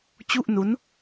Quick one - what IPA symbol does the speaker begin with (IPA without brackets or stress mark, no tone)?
t͡ɕ